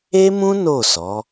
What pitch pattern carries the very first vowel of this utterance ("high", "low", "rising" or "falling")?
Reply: high